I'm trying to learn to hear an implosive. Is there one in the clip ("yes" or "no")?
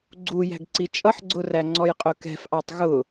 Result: no